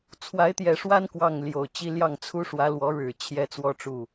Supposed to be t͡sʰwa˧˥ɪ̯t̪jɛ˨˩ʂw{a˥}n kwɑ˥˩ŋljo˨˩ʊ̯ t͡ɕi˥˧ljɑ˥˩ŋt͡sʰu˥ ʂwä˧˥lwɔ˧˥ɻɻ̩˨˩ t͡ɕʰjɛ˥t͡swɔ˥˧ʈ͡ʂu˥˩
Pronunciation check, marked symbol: correct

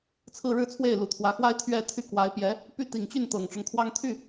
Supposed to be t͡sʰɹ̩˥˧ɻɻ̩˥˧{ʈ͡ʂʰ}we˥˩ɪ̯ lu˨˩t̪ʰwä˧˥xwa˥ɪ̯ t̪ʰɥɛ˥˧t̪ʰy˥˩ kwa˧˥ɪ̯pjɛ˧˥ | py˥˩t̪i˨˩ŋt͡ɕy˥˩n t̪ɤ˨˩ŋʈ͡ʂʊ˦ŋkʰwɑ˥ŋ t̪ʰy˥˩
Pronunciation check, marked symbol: incorrect: t͡sʰ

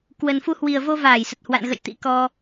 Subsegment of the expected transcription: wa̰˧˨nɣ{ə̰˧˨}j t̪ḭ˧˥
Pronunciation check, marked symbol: correct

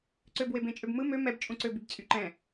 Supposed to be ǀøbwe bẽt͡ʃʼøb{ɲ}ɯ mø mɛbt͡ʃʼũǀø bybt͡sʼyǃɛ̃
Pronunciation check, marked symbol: incorrect: m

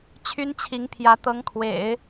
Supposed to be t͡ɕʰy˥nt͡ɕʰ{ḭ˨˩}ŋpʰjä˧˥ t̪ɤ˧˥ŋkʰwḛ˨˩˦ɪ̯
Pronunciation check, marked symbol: incorrect: i˧˥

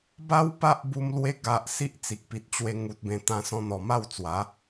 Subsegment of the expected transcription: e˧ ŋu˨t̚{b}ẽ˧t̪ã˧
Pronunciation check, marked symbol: correct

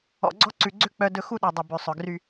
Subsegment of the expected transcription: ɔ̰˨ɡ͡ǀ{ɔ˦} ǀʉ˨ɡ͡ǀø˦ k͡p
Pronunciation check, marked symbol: correct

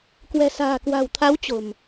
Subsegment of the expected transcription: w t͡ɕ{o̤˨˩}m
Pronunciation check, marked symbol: correct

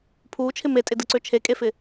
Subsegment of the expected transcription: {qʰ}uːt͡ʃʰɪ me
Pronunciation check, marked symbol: incorrect: pʰ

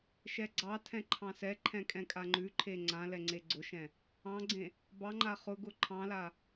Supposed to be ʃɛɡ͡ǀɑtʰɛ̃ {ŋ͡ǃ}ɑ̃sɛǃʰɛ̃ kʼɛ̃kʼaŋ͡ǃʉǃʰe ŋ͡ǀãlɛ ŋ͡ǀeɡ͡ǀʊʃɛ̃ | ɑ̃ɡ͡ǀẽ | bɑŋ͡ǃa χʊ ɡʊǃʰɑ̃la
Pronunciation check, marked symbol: incorrect: ǃʰ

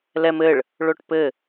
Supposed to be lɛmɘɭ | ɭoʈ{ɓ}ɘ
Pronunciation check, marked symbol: incorrect: p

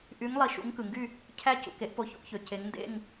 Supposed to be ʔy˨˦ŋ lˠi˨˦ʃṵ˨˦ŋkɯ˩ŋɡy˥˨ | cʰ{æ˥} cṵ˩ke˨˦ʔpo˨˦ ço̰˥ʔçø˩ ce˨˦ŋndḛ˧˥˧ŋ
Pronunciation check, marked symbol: correct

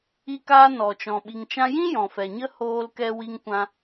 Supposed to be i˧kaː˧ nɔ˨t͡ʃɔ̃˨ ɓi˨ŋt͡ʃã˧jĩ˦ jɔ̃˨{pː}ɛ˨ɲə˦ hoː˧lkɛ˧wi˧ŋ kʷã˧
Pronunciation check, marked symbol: incorrect: f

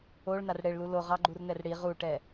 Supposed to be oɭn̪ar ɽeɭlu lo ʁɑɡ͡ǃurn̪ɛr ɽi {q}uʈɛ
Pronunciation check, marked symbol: incorrect: ʁ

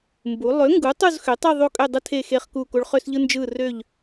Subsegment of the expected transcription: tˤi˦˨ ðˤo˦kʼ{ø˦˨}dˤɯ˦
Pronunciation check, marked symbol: correct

